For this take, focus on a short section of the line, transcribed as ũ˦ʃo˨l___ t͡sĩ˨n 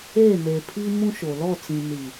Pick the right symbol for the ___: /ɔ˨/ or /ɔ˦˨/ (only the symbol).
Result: ɔ˦˨